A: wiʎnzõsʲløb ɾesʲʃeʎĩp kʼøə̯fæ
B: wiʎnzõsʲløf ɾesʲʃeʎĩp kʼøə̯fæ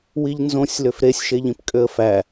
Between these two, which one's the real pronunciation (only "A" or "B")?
B